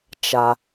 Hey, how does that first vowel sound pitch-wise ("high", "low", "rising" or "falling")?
high